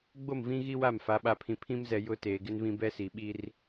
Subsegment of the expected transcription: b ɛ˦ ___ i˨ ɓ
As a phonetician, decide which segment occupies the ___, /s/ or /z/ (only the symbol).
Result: s